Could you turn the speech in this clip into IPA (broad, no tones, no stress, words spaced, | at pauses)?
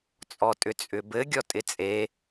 t͡sʼɔtʼʏt͡sʼʏbɘ ɡʲɔtʼɪt͡sʼe